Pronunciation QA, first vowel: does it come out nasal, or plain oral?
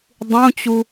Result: nasal